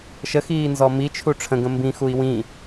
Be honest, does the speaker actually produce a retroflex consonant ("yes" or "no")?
yes